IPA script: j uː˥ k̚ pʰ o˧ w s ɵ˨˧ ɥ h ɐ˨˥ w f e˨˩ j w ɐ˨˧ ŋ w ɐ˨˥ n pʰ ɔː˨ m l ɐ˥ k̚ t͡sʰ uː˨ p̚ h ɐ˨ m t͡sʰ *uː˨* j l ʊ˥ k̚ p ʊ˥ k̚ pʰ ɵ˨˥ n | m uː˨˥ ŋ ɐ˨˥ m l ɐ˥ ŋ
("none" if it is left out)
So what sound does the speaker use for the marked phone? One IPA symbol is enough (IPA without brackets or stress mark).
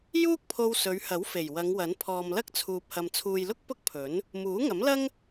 uː˨